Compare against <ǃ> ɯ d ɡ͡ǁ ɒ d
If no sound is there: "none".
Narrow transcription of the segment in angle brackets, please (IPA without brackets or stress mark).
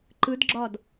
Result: ǃ